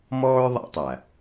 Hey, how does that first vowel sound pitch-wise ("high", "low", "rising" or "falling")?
high